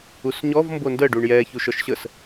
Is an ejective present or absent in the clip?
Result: absent